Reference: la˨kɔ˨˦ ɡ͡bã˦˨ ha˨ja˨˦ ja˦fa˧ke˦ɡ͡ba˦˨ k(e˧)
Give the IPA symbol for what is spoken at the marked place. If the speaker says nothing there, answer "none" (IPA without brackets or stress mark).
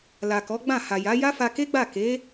e˨˦